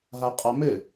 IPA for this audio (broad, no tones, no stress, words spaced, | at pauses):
ɦaqʼamɘ